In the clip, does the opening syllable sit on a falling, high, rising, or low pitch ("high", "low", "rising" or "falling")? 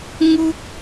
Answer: high